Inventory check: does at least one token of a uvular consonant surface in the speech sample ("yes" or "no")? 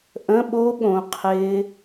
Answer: yes